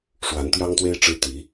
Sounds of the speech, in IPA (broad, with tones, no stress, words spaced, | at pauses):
ʂwa˧˥nt̪jɑ˥ŋt̪we˥ɪ̯ ʈ͡ʂɻ̩˥t̪i˧˥